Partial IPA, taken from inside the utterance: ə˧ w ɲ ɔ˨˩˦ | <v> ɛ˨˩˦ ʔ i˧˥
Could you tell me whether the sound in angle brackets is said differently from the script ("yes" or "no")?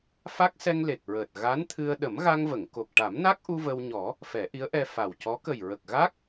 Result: yes